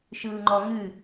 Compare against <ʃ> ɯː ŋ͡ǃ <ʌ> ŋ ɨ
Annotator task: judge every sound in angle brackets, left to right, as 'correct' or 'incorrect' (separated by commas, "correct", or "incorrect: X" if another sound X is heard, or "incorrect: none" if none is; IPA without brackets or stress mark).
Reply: correct, incorrect: ɔ